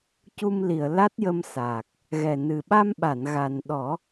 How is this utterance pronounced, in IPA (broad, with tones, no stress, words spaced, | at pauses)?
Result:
cu˧mli˨˩˨ə̯la˦˥t̚jə˧m saː˨˩k̚ | ɣɛ˨˩nɨ˨˩ɓa˧mɓa˨˩˨n ɣa˨˩nɗɔ˨˩˦